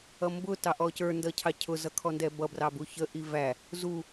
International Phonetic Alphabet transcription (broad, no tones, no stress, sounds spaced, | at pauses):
ʌ m b ʊ t ɑ ʔ ɔ c ə˞ n d ʌ cʰ ɑ cʰ ʊ z ʌ kʰ ɔ n d ɛ b ʌ b r ɑ b u ç ə ʔ i v æ | z u